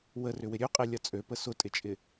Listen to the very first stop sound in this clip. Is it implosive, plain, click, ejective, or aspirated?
ejective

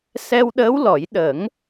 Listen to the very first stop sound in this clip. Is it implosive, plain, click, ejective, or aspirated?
implosive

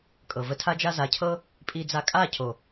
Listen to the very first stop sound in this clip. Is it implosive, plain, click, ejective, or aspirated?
ejective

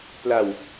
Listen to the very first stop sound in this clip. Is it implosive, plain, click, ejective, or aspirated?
plain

